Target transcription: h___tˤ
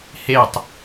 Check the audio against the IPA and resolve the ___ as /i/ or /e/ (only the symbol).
e